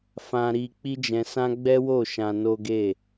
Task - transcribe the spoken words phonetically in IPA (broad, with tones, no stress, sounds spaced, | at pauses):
f ã˧ ɾ i˧ k͡p i˦ d͡ʒ ɛ̃˧ s ã˦ ɡ͡b ɛ˦ w o˦˨ ʃ ã˧ n o˦ ɡ e˦˨